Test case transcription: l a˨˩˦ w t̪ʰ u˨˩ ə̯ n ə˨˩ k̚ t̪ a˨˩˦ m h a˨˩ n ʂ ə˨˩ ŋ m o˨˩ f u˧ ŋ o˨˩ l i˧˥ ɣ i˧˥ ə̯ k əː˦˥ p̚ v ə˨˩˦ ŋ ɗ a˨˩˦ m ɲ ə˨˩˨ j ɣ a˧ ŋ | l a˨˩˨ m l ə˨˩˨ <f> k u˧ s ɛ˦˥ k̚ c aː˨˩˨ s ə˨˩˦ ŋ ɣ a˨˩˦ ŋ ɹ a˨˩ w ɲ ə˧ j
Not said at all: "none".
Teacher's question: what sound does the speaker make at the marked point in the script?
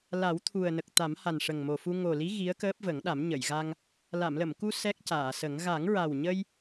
m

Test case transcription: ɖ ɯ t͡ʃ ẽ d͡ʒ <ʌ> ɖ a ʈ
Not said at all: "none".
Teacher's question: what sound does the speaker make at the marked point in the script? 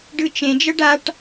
ʌ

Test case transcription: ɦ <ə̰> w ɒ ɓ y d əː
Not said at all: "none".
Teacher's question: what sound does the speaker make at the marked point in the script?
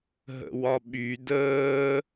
ə̰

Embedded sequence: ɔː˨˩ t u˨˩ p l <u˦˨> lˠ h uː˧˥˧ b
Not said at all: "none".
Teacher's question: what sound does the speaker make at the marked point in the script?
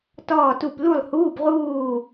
u˦˨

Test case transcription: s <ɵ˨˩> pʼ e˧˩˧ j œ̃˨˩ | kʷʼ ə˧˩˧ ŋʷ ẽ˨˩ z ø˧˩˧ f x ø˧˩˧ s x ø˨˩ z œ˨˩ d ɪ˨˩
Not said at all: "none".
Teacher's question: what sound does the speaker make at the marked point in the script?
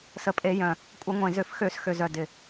ə˨˩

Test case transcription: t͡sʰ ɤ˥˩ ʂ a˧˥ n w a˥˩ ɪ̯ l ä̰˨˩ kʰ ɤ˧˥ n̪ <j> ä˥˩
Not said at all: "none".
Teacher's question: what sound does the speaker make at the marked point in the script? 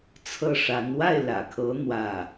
w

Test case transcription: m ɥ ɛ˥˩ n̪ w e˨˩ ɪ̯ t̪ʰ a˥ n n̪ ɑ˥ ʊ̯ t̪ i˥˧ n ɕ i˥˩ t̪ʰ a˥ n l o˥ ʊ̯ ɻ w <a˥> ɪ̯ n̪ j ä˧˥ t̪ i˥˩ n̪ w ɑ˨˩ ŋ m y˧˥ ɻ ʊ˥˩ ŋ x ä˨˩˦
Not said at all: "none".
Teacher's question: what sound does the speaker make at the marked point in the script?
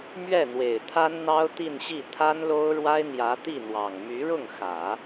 a˥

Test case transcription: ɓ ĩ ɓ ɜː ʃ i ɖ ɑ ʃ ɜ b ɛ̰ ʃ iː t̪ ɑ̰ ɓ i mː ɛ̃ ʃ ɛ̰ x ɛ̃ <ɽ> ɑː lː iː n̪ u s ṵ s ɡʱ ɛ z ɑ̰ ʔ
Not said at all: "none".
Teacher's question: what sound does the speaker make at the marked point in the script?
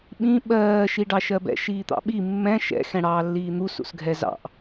ɽ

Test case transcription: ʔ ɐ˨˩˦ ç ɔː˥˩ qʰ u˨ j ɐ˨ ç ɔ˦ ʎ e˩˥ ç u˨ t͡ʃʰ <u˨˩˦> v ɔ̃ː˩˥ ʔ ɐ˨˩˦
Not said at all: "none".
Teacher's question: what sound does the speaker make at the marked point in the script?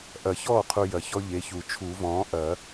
u˨˩˦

